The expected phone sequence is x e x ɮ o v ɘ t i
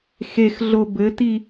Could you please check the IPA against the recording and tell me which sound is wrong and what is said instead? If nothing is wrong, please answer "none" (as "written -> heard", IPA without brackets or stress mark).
v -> b